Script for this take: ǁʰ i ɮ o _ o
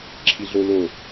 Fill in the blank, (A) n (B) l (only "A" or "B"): B